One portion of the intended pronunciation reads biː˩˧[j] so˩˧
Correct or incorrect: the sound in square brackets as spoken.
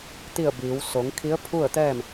incorrect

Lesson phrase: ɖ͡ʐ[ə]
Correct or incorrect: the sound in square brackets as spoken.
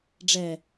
incorrect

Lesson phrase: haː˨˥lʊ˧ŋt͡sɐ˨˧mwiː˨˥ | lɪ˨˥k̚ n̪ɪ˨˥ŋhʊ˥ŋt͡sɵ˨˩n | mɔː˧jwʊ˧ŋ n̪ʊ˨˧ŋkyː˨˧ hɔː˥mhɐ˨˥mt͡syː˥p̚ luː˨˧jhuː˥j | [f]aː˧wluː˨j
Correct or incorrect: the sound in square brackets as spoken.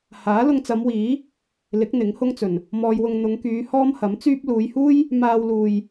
incorrect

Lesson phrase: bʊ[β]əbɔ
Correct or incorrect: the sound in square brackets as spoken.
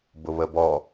correct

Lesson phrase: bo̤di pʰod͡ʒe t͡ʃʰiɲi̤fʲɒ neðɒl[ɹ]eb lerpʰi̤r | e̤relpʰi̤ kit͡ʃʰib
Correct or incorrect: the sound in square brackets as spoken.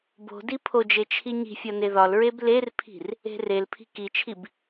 correct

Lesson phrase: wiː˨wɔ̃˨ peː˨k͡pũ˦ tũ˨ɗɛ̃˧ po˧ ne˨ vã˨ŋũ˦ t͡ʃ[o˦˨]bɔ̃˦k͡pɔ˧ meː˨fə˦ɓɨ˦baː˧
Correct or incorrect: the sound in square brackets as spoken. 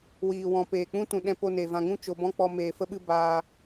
incorrect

